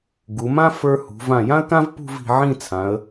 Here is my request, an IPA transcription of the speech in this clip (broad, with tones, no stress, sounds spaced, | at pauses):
ɡ u˩˧ m ã˥ f ə˞˥ h ṳ˩˧ v ã˧˩ j ã˥ ə̯ k ã˥ v p ṳ˥˧ v i̤˩˧ ʕ ĩ˥˧ t͡sʰ ã˩˧ ə̯